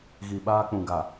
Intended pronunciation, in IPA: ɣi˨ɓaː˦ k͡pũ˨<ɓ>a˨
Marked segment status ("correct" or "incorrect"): incorrect